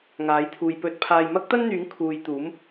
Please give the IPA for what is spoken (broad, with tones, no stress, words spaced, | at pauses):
ŋaː˨˥jt̪ʰuː˨jpɵ˧t̚ pʰaː˨jmɐ˥k̚t̪ɐ˥nn̪yː˨˥ŋ kʰuː˨jt̪uː˨˥m